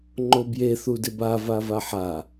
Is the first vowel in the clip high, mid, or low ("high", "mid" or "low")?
mid